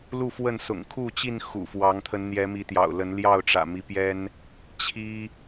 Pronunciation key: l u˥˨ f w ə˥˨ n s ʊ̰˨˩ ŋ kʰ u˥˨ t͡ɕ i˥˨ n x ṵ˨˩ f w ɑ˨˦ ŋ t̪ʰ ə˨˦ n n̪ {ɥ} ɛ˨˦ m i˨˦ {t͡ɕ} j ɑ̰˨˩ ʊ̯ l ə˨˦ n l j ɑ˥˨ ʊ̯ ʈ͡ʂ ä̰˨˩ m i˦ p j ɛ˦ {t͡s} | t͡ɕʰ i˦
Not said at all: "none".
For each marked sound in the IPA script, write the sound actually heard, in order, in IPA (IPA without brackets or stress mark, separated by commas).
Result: j, t̪, n